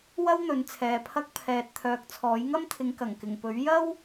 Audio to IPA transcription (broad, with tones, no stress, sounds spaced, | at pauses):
w ɐ˥ w n̪ ɵ˨˧ n t͡sʰ ɛː˨ pʰ ɐ˧ k̚ pʰ ɛː˨ t̚ t̪ʰ œː˨ k̚ t͡sʰ ɔː˨˥ j ŋ ɐ˥ m t̪ʰ ɪ˨˧ ŋ k ɐ˨˩ ŋ k ɪ˨˩ ŋ p ɵ˨˥ ɥ j ɐ˥ w